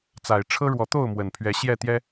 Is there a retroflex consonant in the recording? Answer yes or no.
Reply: yes